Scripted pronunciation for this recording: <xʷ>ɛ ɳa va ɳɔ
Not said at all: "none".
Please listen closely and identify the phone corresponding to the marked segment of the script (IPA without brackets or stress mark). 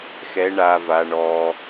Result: x